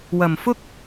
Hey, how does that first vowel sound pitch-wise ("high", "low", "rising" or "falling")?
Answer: low